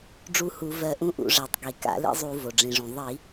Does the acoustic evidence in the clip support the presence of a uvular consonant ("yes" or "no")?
no